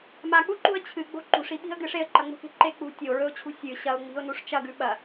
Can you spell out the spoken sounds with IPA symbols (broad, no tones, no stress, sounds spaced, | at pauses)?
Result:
m a k͡p u ǃ ṳ ə̯ t͡ɕʰ ɨ ɡ͡b o̤ ǃ ṳ ʂ i ɓ i̤ ə̯ ɡ ɨ ʂ e ə̯ ǃ ɐ ŋ͡m ṳ k e̤ ǃ e k͡p ṳ tʲ o ɹ ɵ ʊ̯ t͡ɕʰ ṳ sʲ ɨ ɕ ɐ ʊ̯ ŋ͡m i̤ ʊ̯ n u ʂ t͡ʃ ɐ ɡ ʉ ɓ ɐ